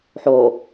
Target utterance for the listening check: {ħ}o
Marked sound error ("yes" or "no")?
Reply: no